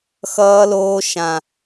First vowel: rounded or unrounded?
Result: unrounded